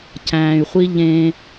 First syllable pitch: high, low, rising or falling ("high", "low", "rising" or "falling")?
low